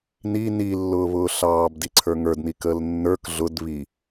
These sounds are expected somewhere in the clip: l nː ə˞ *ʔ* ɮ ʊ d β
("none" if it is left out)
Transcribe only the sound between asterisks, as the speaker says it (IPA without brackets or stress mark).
k